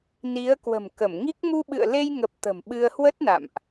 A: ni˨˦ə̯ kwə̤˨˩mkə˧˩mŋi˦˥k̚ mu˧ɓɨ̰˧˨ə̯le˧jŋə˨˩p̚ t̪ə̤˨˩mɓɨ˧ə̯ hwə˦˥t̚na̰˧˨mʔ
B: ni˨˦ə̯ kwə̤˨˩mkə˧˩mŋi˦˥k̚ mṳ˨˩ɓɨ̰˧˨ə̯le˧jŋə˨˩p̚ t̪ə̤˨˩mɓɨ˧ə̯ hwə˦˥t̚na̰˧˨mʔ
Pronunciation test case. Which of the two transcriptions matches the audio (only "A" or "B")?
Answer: A